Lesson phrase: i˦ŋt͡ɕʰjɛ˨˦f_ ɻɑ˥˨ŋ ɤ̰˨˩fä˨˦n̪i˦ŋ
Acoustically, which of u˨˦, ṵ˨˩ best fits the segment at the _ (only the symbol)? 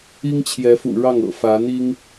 ṵ˨˩